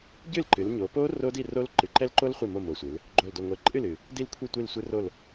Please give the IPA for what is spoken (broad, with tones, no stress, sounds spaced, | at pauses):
ɟ ɨ˥˨ l ǃ ɨ˩˧ l ɲ o˩˧ p o˦˥ r o˦˥ d i˥˨ r o˦˥ l ǃ ɨ˨˩ ǃ ɛ˦˥ l ǃ o˦˥ l χʷ i˥˨ m o˥˨ m o˨˩ sʷ ɨ˩˧ l | ɡ͡ǃ o˨˩ l d o˨˩ ŋʷ ɛ˨˩ ǃʼ ɨ˥˨ l ɨ˨˩ | d i˥˨ l kʷʰ i˥˨ tʷ i˥˨ l sʷ ɨ˦˥ r o˥˨ l